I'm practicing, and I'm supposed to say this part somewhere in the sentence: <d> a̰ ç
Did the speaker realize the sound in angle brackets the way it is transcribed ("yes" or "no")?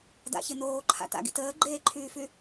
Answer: yes